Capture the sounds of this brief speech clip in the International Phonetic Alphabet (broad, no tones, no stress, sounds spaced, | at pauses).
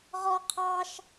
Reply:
ʁ ɔ qʰ ɑ ʃ